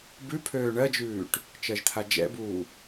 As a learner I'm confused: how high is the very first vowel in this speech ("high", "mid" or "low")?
high